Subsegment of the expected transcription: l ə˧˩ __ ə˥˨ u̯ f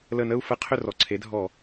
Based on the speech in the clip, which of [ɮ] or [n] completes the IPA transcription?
n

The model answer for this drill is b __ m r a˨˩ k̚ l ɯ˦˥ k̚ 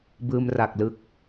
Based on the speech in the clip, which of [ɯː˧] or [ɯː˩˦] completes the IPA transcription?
ɯː˧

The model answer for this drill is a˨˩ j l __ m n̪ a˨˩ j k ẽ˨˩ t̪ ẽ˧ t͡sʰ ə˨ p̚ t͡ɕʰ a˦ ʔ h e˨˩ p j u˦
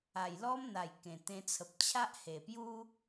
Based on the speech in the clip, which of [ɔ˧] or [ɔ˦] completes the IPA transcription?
ɔ˦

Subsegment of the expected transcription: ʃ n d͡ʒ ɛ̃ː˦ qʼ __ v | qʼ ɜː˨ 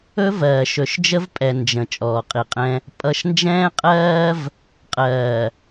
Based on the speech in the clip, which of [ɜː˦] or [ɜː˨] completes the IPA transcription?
ɜː˦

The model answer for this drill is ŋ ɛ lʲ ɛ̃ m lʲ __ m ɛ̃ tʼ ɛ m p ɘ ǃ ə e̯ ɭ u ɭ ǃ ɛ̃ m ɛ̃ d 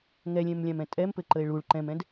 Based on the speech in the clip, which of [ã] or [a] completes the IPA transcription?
ã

